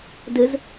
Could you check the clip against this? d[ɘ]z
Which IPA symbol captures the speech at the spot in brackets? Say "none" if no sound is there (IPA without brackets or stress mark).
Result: ɘ